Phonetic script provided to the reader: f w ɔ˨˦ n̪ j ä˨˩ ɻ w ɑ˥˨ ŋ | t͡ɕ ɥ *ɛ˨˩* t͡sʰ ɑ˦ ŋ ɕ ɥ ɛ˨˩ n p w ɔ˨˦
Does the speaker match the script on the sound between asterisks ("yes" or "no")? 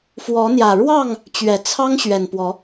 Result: yes